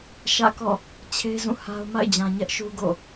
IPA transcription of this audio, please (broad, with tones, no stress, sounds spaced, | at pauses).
ʃ ä̰˦˨ k ɔ̰˦˨ | t͡ɕʰ e˦ z ũ˦˨ h a˦ ʊ̯ m a̰˦˨ ɪ̯ d͡ʑ ã˨ ɲ ɛ˦ ʔ ʃ u˦ ɡ o̰˦˨